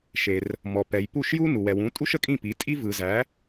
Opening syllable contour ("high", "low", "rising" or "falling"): low